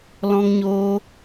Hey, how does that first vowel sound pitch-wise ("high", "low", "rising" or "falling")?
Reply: high